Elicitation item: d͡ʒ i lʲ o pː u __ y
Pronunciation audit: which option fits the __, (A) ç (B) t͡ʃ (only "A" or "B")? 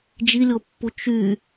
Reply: B